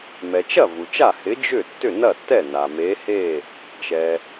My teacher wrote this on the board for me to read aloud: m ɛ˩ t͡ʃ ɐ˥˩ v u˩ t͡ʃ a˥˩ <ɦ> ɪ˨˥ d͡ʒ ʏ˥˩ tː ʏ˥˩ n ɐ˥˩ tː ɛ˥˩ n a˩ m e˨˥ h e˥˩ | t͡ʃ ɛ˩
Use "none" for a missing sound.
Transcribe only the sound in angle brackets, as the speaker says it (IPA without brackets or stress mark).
h